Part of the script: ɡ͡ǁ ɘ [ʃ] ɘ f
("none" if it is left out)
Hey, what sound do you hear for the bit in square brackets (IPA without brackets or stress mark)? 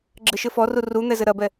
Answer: ʃ